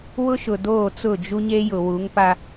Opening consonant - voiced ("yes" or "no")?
yes